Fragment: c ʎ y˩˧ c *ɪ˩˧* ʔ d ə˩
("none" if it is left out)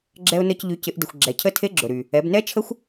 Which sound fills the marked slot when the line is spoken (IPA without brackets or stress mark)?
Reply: ɪ˩˧